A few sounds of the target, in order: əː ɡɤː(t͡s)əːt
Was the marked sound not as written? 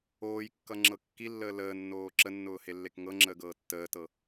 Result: yes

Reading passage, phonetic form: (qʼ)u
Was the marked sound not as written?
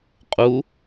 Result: no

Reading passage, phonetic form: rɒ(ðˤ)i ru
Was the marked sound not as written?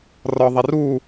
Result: no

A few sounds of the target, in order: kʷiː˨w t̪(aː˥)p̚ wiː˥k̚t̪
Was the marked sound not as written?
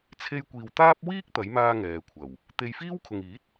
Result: no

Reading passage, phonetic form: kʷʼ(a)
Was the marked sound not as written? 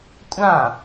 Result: yes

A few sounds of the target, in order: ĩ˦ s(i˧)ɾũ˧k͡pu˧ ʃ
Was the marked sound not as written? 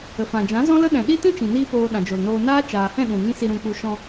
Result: no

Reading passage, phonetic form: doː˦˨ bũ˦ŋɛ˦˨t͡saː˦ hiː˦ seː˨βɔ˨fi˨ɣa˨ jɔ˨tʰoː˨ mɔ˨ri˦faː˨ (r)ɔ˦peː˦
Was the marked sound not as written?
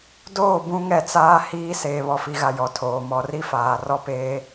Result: no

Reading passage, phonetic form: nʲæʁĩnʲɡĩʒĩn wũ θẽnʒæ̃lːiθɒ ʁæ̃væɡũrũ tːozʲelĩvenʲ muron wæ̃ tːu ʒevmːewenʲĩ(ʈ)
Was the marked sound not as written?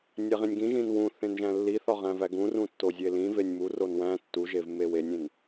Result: yes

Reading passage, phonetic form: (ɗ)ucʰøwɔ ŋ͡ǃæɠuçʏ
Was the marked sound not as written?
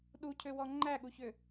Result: no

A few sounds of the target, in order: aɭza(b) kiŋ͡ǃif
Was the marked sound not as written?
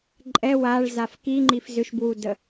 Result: yes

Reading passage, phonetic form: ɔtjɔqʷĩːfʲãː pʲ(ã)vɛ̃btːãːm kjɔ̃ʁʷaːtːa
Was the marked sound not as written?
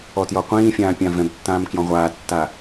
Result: no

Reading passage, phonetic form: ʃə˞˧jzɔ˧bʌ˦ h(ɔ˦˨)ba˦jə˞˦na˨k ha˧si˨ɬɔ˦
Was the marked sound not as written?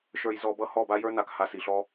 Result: no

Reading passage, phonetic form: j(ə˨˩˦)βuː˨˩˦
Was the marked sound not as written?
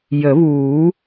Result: no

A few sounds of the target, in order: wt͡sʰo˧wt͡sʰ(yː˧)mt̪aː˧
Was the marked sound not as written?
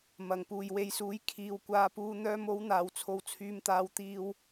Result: no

